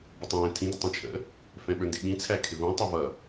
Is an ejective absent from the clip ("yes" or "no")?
yes